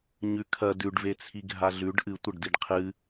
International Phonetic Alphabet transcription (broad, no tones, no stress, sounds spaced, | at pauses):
ɲ ʉ kʰ ɐ d ʉ ɖ v e t͡sʰ i ɡʱ a ɮ ʉ ɖ ʔ ɨ tʷ ɐ ɖ d i ɖ qʰ ɨ